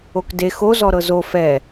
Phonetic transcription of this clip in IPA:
okde xo zɔɾɤzo fɛ

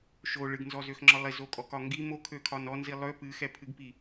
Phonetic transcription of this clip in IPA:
ʃo ɭɨɡnzɔzøxŋ͡ǁɒ lˠizokʼɔkɒ ŋɡi mokʰøkʰɒn ɔnzi lˠø pɨxɛpʰɨɡpi

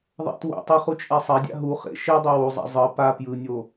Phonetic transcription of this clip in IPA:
ðˤa̰two̰tˤɯ χut͡ʃʼasˤadʲa̰ ɦu χḛ ʃɛdˤɛ wuzˤa̰ zˤɯ pa pjɯnʲo

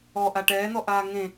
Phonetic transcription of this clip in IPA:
ɔʔa ʈɛːn̪ɔ ʔaːŋẽ

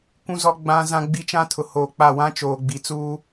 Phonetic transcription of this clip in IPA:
kʷũ˦zɔ˦ ɡ͡bã˦ zã˦ɡ͡bi˦t͡ʃã˦ tʰʊ˨hoː˨k͡pa˦˨ wã˦t͡ʃoː˨ɡ͡bi˨t͡suː˦

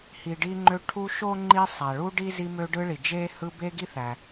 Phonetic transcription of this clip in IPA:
hi˨ɖi˦ŋ͡ǃø˦ ʈʰu˦ ʃo˥ŋ͡ǃi˦sˤæ˩ɭu˥ ɖi˥zi˦mø˦ ɖɯ˦ɭi˩d͡ʒe˥ hɯ˦be˥ɡi˥ θæ˩

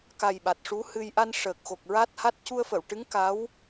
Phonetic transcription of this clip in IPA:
ka˨˩j ɓa˨˩t̚ʂu˧˥hɨ˧j ʔa˧n ʂəː˨˩k̚xo˨˩k̚ɹa˦˥t̚ha˦˥t̚ cu˧ə̯fə˨˩˨wʈɨ˧˥ŋ ka˧˥w

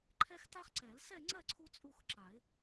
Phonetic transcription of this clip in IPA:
ǃʰɛ˥xta˥χǀɛ˨˩˦l sɛ˥˧ŋ͡ǀɜ˥˧ ǀʰu˥t͡sʼu˥˧xǁa˨˩˦ɪ̯

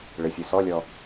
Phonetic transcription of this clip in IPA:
ɭɪfʲu sɔlʲɔ

